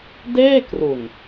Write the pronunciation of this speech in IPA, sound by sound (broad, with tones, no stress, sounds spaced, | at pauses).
d eː˥˩ k r u˨˩ n